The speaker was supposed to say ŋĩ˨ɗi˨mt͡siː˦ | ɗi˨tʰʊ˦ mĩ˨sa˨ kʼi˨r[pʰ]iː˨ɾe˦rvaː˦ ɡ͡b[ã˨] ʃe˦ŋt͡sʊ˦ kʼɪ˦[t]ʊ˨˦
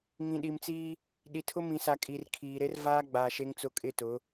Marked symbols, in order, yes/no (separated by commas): no, no, yes